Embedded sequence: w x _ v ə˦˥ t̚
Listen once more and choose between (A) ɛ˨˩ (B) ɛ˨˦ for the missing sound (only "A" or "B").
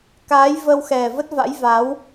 A